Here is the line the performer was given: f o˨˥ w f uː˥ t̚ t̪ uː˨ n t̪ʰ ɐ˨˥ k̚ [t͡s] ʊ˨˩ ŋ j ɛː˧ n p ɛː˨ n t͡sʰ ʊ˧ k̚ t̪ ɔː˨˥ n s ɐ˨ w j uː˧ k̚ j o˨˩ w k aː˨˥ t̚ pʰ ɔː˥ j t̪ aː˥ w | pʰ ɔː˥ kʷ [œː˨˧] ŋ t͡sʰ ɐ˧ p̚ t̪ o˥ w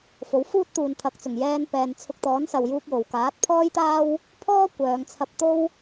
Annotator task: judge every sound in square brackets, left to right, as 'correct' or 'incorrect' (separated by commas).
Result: correct, correct